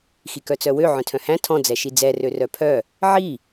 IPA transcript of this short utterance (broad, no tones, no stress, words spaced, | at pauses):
xikœt͡sœwø ʕœ̃tʰœ̃hæ̃ tʰɔ̃ d͡zɛʃid͡zɛ rørœpʰœ | ʕi